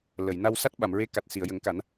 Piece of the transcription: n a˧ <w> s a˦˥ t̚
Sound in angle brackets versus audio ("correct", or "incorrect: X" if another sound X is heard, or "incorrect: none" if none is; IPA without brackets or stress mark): correct